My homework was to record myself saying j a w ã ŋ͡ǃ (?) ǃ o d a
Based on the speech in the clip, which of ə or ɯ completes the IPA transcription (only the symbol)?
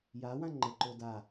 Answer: ə